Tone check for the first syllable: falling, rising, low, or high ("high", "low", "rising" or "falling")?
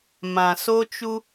low